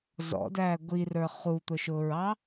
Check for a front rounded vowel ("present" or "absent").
absent